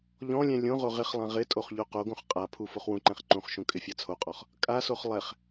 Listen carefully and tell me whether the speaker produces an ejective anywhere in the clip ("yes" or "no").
yes